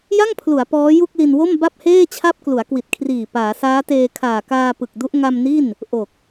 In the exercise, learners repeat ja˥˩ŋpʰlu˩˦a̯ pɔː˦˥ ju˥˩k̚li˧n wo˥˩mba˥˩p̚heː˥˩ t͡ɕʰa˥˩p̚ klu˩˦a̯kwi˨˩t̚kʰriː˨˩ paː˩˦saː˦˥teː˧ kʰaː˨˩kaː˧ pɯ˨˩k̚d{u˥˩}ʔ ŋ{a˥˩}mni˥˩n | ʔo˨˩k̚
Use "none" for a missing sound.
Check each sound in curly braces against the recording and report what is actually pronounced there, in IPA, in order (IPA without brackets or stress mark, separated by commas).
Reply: u˦˥, a˧